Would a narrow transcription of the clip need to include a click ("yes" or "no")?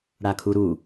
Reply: no